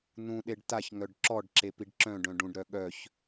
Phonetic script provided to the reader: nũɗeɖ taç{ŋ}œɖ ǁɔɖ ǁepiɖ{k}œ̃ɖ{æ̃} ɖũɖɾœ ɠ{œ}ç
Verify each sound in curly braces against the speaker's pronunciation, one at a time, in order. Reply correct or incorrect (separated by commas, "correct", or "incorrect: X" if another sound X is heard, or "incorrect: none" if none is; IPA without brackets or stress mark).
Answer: correct, incorrect: ǁ, incorrect: œ̃, correct